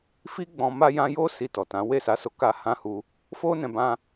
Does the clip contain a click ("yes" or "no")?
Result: no